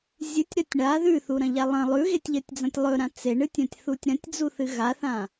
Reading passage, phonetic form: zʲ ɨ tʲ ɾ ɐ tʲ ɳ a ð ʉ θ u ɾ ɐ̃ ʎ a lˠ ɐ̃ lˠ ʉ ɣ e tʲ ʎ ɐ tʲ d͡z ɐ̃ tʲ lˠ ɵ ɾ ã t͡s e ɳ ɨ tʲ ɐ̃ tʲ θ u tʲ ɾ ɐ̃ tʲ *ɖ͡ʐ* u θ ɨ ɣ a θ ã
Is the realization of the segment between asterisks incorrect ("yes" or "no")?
yes